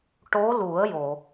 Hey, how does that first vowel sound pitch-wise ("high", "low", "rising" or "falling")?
rising